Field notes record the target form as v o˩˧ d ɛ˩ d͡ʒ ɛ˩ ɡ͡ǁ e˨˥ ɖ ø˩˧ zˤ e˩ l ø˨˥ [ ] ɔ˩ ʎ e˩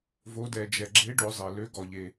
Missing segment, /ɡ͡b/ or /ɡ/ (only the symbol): ɡ